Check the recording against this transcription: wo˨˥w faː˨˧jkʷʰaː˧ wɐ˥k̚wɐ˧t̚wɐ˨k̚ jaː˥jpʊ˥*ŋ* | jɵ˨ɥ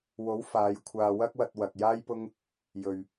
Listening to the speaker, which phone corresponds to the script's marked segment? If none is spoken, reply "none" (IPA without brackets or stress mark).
ŋ